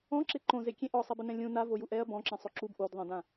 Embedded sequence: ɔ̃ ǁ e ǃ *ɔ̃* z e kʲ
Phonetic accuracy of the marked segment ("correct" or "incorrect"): incorrect